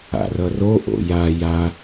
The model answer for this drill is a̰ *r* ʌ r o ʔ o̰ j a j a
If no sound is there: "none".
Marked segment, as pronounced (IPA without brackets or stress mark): r